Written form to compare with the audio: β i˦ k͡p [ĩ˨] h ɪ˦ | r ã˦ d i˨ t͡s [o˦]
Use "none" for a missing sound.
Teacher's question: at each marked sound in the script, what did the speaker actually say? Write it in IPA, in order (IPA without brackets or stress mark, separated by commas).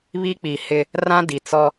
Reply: i˨, ɔ˦